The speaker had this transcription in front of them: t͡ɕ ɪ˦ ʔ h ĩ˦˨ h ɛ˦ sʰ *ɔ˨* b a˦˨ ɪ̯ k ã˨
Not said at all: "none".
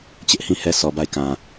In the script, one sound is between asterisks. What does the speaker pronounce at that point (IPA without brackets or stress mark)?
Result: ɔ˨